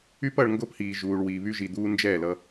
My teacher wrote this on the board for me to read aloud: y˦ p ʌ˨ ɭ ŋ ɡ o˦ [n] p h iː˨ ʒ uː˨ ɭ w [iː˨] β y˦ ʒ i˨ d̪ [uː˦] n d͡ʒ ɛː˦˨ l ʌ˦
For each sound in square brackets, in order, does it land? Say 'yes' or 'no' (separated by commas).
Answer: no, yes, yes